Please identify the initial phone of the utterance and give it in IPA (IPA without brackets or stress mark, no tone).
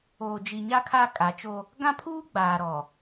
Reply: oː